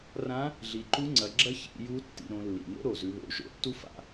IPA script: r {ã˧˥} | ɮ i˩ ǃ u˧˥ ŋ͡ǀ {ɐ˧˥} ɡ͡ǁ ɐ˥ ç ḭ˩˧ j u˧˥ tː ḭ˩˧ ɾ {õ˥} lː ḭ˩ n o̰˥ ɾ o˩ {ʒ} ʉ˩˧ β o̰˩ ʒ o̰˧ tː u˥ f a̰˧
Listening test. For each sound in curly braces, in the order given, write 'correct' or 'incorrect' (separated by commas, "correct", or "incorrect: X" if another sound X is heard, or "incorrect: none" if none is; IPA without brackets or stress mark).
correct, incorrect: ɐ˩˧, incorrect: õ˩˧, incorrect: z